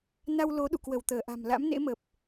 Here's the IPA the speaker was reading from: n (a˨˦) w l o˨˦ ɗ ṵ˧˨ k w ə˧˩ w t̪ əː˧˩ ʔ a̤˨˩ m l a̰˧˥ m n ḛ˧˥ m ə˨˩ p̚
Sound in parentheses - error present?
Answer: yes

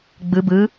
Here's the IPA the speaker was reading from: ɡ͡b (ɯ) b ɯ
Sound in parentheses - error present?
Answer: no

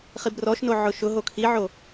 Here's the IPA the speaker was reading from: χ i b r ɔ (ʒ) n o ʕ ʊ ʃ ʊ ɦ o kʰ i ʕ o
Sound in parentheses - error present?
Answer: yes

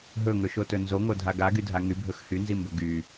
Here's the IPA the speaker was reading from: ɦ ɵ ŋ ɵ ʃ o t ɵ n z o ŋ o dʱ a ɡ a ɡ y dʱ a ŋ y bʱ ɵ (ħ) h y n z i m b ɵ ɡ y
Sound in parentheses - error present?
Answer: yes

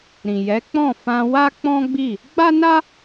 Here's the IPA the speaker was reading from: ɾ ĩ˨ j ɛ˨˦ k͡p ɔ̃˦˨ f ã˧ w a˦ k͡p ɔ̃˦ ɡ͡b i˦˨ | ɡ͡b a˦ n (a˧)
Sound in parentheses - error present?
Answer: yes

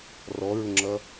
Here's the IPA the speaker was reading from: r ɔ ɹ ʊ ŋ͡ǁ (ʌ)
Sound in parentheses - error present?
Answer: no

